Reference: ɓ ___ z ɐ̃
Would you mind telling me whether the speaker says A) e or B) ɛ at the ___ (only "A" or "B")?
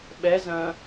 B